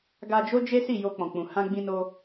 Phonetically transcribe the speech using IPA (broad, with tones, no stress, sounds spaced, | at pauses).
ɡ a˧ d͡ʒ o˦ d͡ʒ e˦ s i˦˨ j o˧ k͡p ɔ̃˨ k͡p ũ˨ h ã˧ ɡ͡b ĩ˧ n o˧